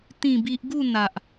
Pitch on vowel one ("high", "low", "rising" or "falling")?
falling